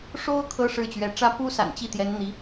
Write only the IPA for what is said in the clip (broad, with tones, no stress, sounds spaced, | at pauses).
ʂ o˥ ʊ̯ kʰ ɤ˥ ʂ ɻ̩˥˩ t͡ɕ ɥ ɛ˧˥ ʈ͡ʂ ä˥ p u˥ s a̰˨˩ n t͡ɕ i˥˩ t̪ j ɛ˧˥ n n̪ i˧˥